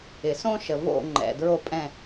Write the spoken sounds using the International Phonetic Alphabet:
ɪ˩ s õ˦ ʃ ə˩ v o̰˧˩ ŋ͡ǃ ɛ̰˩ d ɹ o˧˩ pʼ ɛ̃˧˩

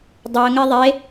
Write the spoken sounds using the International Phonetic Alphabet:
dˤ ɛ ə̯ ŋ ɛ ðˤ e

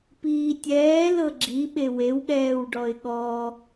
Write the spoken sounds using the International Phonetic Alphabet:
p iː tʲ ɛː l ɤ ɡ͡ǁ i ɓ e w e w ɠ ɛː w ɖ ɔ ɪ̯ ɠ ɔ

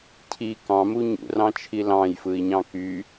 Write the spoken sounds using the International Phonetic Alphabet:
cʰ i k ɑ̃ m u ɲ ṵ r ɑ̃ t͡ʃʰ i l ɑ̃ j f ɯ i̯ ɲ ɑ̃ k y

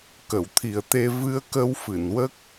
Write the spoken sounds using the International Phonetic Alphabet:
k ə˨˩˨ w t̪ʰ i˨˩ ə̯ t̪ e˧ v ɨ˧ ə̯ k ə˧ w f ɨ˨˩˨ n w ə˦˥ k̚

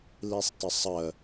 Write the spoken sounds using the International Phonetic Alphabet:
l i sˤ t ə sˤ ə

